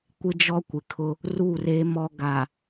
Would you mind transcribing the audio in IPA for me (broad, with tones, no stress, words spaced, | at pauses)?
kʷɪ˦d͡ʒɔ˦kʷɪ˨kʰʊ˦ | ru˦˨re˦ mɔ˦ɡa˨